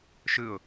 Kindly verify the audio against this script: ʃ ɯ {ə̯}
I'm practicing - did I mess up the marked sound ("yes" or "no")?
yes